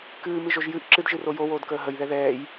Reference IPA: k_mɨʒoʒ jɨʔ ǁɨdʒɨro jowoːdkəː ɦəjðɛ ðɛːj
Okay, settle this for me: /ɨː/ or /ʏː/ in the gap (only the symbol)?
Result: ɨː